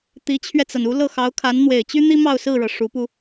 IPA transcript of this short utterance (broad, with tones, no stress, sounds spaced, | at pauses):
t̪ i˧˥ t͡ɕʰ ɥ ɛ˧ t͡s a˩ n u˧˥ l ɤ˥˩ x ɑ˧˥ ʊ̯ kʰ a˧˥ n n̪ w e˨˩ ɪ̯ t͡ɕ y˥ n̪ i˥ m ɑ˥˧ ʊ̯ s ɹ̩˥˩ ɻ ɤ˩ ʂ u˧˥ p u˧